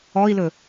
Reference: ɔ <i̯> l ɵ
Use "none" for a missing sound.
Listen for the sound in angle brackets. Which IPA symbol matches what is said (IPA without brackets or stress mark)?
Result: i̯